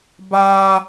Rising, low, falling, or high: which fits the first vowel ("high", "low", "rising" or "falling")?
high